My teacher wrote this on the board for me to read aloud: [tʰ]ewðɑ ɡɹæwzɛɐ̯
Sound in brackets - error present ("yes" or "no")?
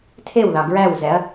no